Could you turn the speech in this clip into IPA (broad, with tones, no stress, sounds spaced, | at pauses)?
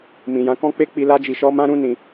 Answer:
m ĩ˨ j ã˨˦ k ɔ̃˦ k͡p e˦ k͡p i˧ l a˦ d͡ʒ i˧ ʃ ɔ˦ m ã˦ ɾ ũ˦ n ĩ˧